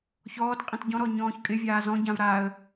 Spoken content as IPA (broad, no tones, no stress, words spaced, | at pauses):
çɔːtqʼĩt ɟɔ̃ɾɔɲɔ̃ːç kʼɪvʲaː zɔ̃ɟãv ɾaə̯